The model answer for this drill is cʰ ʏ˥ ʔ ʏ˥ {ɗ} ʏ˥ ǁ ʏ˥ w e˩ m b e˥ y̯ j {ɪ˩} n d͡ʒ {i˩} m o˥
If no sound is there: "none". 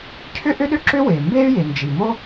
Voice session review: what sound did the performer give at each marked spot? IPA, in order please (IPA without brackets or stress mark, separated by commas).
ɗ, ɪ˩, i˩